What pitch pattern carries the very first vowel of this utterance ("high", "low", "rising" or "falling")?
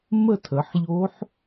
falling